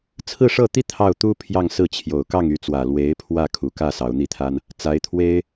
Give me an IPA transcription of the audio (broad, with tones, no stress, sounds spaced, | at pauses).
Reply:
t͡sʰ ɹ̩˥˧ ʂ ɤ˥˩ t̪ i˥ t̪ʰ ɑ˥˩ ʊ̯ t̪ u˥ pʰ j ɑ˥˧ ŋ s ɹ̩˥˩ t͡ɕʰ j o˨˩ ʊ̯ k ɑ˥˩ ŋ y˧˥ t͡s w ä˨˩ l w e˧˥ ɪ̯ pʰ w ä˥˩ kʰ u˨˩ k ä˥˩ s ɑ˧˥ ʊ̯ n̪ i˥˩ t̪ʰ a˥ n | t͡s a˧˥ ɪ̯ t̪ʰ w e˥ ɪ̯